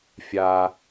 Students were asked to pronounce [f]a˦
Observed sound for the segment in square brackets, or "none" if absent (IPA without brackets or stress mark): fʲ